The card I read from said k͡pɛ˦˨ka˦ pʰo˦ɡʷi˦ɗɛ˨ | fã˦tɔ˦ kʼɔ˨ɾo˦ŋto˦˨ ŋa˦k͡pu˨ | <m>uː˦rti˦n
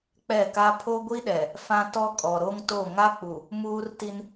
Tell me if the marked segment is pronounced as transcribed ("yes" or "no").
yes